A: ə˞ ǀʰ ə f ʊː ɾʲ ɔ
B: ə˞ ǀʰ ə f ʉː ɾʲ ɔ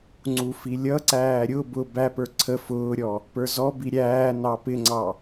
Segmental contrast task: A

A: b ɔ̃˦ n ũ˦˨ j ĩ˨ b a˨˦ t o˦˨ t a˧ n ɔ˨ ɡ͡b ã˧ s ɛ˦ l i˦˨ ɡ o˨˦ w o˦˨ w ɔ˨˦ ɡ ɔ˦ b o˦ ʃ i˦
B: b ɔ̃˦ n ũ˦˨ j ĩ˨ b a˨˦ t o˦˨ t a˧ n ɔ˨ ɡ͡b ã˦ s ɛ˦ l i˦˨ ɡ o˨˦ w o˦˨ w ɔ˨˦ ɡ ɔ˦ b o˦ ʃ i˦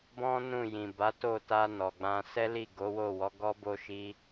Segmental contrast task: A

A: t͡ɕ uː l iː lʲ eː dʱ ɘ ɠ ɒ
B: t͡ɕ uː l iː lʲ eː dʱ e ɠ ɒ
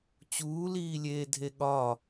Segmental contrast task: B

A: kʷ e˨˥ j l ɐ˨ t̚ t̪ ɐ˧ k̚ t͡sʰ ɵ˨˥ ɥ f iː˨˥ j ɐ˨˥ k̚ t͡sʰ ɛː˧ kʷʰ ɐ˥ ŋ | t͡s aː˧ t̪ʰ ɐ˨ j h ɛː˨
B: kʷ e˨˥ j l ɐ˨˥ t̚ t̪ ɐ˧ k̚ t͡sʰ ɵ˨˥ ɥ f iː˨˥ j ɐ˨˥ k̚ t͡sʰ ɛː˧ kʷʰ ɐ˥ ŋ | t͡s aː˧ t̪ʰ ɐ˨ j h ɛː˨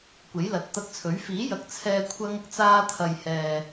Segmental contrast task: B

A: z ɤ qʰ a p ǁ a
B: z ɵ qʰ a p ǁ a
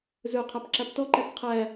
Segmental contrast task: B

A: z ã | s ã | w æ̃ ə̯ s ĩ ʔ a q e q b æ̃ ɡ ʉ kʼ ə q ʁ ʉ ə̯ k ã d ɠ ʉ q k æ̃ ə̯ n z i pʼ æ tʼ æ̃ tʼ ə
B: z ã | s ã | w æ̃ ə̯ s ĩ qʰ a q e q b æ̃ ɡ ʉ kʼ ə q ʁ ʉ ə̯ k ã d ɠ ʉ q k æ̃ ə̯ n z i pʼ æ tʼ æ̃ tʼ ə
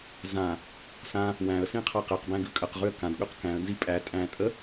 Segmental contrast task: B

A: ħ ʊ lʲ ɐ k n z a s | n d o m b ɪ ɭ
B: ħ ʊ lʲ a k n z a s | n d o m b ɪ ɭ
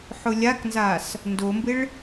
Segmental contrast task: B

